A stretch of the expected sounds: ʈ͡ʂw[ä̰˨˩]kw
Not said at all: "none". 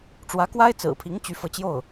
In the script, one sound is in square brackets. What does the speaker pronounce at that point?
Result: ä˧˥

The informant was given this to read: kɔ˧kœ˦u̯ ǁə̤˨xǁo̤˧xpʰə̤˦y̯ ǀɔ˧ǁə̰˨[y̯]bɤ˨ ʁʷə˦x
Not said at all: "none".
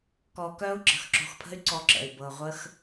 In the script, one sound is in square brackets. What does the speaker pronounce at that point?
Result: y̯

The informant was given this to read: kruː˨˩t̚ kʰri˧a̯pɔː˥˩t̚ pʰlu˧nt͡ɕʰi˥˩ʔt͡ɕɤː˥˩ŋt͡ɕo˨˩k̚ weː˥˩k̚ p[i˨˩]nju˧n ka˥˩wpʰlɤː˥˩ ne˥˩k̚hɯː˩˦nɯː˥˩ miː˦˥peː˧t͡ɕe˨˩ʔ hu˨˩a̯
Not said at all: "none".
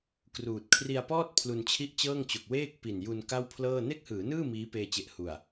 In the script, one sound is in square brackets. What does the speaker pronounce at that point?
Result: i˨˩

